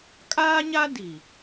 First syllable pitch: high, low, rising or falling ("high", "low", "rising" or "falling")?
high